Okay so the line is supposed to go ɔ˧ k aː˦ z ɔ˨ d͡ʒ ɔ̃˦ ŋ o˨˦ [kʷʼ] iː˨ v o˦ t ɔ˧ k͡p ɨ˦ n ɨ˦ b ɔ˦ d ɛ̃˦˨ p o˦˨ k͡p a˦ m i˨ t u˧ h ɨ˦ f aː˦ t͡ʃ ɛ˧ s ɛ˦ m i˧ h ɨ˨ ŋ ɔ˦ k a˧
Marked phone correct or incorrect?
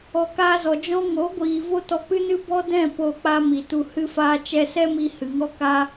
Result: incorrect